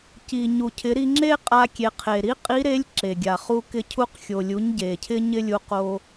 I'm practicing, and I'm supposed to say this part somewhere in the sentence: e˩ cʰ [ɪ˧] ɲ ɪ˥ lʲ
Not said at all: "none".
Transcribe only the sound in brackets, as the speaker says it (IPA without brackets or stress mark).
ɪ˧